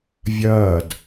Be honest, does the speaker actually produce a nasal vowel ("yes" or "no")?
no